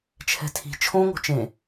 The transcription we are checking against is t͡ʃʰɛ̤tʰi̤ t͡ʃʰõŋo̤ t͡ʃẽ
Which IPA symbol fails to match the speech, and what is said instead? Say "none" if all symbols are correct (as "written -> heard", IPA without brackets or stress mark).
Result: none